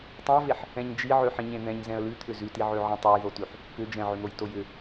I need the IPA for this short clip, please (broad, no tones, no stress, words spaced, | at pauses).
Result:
tˤɛ̃ə̯veħ | ɛ̃ɲd͡ʒi ʕøħĩɲẽn̪ɛ̃ɲ zɛ̃ə̯lʉt̪ʰʏ zʉtiʕøʕĩ tˤojðotʉħ | kʏ d͡ʒɛ̃ʕʏn̪oj tojʏ